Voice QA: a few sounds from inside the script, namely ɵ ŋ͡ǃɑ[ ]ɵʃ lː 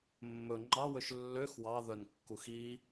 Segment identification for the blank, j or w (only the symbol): w